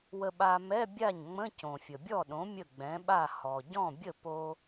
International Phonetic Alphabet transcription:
wə˧ɓa˧ mɛ˧˥˧bʲa˥˩ɲ ŋ͡mə̃˧˥˧ cõ˩fʲə˩bʲɔ˥˩ɗõ˩˥ mʲə˥˩ɡ͡bɛ̃˩˥ɓa˥˩ hɔ˩ ɟɔ̃˥˩bʲə˥˩ po˧

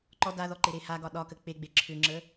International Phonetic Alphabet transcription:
ǃɔ daðɔ ǃɪɾehaɡɒ ɗɒkə k͡peɡ͡be ǁʰʏŋ͡ǁə

